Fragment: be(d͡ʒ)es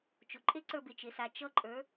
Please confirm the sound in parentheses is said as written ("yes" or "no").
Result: no